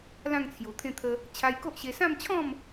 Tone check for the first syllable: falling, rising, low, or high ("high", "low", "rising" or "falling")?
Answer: falling